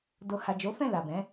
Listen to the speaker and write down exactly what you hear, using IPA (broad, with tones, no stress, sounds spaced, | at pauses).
d o˨ h a˨ d͡ʒ o˨˦ f ɛ̃˦˨ l a˨ b ɛ̃˨˦